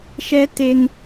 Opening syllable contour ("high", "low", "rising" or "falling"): high